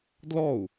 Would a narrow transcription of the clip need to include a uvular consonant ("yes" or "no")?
no